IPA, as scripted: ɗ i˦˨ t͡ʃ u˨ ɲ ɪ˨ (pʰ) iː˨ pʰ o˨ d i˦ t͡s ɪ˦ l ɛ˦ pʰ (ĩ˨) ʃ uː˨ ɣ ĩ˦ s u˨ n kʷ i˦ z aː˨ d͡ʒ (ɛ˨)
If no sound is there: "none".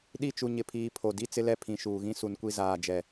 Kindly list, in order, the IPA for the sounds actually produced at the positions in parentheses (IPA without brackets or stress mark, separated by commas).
pʰ, ĩ˨, ɛ˨